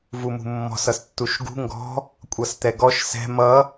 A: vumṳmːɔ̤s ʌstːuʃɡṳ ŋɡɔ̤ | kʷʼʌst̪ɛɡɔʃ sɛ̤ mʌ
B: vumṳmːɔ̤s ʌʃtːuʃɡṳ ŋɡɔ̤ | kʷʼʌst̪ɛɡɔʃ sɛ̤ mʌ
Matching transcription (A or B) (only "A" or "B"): A